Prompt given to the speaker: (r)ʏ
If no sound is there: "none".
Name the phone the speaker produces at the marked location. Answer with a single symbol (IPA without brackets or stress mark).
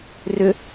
r